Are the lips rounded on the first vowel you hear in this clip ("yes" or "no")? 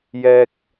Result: no